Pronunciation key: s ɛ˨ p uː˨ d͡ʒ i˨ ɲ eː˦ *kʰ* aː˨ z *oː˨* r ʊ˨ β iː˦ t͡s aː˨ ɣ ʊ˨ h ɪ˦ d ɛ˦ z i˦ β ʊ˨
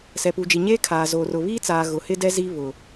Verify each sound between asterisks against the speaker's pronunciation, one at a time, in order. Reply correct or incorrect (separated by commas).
correct, correct